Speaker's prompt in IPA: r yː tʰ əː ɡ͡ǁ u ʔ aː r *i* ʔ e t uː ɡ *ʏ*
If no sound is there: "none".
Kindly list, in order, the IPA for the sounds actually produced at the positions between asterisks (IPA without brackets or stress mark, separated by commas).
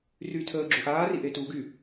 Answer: i, y